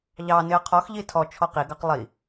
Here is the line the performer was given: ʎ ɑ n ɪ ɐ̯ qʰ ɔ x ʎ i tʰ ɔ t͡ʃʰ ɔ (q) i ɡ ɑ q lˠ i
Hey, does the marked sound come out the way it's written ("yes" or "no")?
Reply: yes